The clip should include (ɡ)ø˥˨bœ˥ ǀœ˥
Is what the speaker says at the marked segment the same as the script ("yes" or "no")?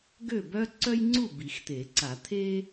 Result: yes